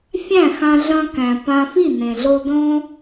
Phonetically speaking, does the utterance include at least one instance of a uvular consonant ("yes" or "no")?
no